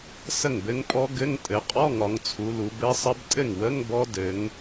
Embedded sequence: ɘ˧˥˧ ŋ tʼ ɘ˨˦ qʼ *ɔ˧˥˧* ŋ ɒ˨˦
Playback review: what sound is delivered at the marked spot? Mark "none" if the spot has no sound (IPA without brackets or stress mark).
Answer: ɔ˧˥˧